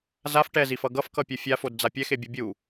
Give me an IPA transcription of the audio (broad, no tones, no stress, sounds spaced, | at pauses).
z a f ʈ ɛ z i f ʌ ɡ ʌ f k ʌ pʲ ɯ fʲ a f o d d͡z a pʲ ɛ x e bʲ u bʲ u